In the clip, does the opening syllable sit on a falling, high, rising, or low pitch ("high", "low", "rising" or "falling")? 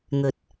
low